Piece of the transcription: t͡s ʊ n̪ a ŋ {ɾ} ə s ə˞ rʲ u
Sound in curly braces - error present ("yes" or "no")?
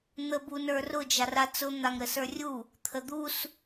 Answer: no